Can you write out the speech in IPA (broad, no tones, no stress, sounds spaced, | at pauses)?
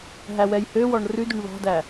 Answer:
ɦ æ w ɛ j h ø w ɔ ɳ r ʉ d ʉ ɳ β ɑ̤ d æ